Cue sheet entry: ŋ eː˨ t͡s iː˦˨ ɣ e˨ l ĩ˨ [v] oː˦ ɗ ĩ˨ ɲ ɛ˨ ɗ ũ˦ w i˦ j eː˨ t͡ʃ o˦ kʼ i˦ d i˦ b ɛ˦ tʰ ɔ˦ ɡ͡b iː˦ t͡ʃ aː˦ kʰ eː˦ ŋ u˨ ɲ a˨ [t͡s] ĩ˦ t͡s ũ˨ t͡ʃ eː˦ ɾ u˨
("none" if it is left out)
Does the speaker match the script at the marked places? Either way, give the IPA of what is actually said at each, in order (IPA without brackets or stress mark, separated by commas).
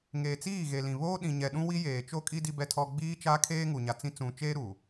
β, t͡s